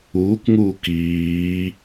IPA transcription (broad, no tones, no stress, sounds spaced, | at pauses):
uː k ŋ uː k iː